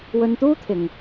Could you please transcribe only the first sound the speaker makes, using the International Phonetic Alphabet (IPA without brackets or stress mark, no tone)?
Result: w